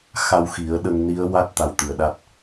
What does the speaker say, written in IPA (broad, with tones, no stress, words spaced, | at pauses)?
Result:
xa˧wxi˨˩˦ə̯ɗə˧ŋ ni˧˥ə̯wa˦˥t̚ t̪a˧wt̪ɨ˨˩ə̯ɗa˦˥t̚